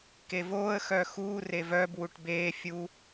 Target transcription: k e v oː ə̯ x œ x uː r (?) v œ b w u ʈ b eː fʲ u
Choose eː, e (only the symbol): e